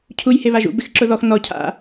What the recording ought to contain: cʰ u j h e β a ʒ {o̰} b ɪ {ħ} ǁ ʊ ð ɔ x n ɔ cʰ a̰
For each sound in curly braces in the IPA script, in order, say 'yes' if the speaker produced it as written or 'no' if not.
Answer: no, no

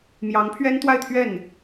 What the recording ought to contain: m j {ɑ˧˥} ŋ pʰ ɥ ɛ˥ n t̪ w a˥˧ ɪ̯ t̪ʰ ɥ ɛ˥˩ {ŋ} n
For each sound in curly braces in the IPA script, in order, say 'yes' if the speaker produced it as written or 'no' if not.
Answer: yes, no

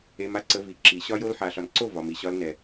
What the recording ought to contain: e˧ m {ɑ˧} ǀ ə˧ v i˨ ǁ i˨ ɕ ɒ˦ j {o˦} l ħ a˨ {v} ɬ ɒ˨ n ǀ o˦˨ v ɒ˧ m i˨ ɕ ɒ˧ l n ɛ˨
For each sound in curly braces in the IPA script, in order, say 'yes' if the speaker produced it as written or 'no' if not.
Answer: no, yes, no

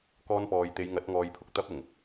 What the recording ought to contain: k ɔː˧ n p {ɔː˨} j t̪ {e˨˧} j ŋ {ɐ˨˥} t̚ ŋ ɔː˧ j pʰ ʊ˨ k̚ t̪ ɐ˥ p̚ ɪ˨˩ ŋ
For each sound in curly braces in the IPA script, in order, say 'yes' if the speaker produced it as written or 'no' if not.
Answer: yes, yes, yes

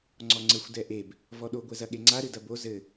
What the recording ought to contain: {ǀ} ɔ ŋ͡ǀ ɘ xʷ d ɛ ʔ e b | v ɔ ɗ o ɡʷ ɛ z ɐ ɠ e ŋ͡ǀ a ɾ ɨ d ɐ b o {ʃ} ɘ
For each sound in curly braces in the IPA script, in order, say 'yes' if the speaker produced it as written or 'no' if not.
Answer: no, no

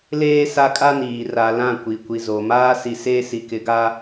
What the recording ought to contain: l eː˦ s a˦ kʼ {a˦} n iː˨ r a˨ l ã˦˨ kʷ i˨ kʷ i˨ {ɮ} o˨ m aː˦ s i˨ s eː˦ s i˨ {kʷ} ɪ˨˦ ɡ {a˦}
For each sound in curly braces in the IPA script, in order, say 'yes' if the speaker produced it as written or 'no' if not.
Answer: yes, no, no, yes

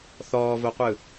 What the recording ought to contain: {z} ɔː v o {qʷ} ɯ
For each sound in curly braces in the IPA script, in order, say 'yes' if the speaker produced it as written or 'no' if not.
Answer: no, yes

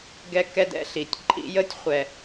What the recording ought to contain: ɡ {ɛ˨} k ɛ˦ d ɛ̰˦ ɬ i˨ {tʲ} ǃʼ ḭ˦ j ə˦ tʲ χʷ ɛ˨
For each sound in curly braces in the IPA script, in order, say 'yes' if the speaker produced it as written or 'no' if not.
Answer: no, yes

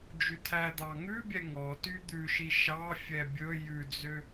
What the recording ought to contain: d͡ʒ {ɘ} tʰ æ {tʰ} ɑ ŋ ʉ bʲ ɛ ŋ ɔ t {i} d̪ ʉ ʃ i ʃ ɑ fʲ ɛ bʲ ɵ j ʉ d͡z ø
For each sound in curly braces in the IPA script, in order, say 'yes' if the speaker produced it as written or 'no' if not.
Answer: no, no, no

